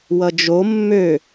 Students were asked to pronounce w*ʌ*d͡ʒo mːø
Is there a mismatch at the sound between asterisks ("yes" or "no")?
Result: no